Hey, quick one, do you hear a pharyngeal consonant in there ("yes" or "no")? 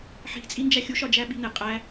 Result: yes